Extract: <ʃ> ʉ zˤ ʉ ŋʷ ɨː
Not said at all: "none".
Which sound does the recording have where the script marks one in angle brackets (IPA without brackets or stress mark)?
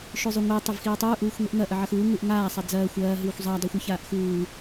ʃ